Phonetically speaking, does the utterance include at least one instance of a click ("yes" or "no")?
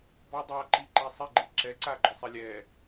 yes